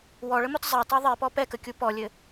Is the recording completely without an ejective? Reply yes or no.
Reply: yes